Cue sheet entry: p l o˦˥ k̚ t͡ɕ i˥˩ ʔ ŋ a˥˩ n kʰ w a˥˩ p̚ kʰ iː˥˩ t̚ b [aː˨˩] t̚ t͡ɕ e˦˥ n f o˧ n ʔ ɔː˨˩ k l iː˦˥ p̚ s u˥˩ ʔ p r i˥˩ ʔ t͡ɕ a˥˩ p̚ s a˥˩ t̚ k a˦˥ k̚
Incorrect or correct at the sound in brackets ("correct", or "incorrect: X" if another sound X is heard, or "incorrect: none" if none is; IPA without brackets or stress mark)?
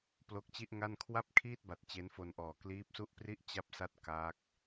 incorrect: a˨˩